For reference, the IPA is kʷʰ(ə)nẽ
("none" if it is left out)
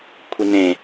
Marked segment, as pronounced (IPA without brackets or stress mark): ɪ